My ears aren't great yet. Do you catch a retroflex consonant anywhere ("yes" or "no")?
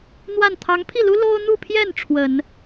yes